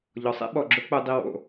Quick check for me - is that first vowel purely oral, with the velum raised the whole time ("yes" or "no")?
yes